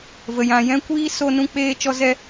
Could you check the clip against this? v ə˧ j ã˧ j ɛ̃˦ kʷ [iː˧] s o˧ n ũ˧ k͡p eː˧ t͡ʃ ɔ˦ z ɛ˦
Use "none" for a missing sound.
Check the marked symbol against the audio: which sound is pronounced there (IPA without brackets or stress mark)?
iː˦